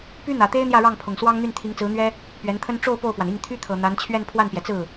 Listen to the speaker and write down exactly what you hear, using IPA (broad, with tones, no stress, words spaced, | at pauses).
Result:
py˥n̪ä˨˩t̪e˥ɪ̯ n̪jä˥˧ɻɑ˥˩ŋ pʰʊ˨˩ŋswɑ˥ŋn̪y˥˩n t̪ʰi˧˥ŋt͡sɹ̩˧˥n̪ɥɛ˥ | pɥɛ˧˥nt̪ʰə˥n ʈ͡ʂo˥˧ʊ̯ po˥˩ʊ̯pwa˩ni˥˩ŋ t̪ʰy˥t̪ʰɤ˨˩ n̪a˧˥n t͡ɕʰɥɛ˥˧npʰwa˥˩npjɛ˩t͡sɹ̩˥˩